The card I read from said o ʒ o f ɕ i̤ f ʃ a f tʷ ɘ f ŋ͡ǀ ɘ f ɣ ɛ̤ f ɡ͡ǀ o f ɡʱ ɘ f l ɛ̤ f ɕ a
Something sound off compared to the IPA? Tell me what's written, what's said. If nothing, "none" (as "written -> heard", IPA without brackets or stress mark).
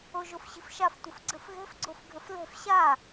ŋ͡ǀ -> ɡ͡ǀ